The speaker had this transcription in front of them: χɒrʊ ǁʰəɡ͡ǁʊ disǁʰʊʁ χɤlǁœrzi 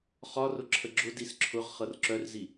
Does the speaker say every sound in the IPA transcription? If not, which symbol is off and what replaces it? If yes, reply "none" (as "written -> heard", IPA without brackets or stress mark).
l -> r